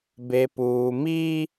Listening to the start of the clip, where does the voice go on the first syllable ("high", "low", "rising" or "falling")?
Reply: high